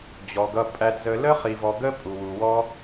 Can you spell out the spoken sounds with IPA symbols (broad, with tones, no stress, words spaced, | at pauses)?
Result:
d͡ʑɔ˨ɡʌ˧ pʼæ˧dzə˧ lə˦χi˨vɔ˨ ɡə˦ pʼu˨wu˨wɔ˦